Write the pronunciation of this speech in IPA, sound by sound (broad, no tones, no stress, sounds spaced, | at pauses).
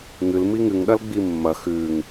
ŋ ɨ l m i ŋ ɨ ŋ ɗ ɐ l ɡ͡b i mː ɐ x ʉ ŋ